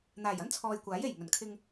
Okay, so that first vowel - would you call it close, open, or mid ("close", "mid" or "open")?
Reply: open